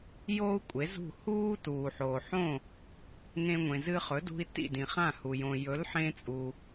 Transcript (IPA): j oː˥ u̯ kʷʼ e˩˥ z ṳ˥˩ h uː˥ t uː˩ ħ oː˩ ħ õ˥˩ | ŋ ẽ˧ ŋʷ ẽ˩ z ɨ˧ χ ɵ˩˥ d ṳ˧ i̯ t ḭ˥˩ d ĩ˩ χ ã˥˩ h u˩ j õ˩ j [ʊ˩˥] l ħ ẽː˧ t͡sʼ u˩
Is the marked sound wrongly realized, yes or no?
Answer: yes